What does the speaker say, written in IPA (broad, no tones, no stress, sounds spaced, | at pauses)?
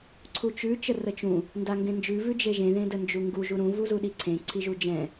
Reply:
ǀʰ u t͡ʃ ʉ t͡ʃ ə r ə t͡ʃ ũ | n d a ŋ ɡ ẽ n d͡ʒ ʉ v ʉ d͡ʒ e ʒ ẽ ð ẽ d ə n d͡ʒ u ŋ ɡ u ʒ u ɾ ũ v u z u ɗ i ǀʰ ẽ ǀʰ i ʒ u d͡ʒ ɛ̃